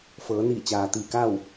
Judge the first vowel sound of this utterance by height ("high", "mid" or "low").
mid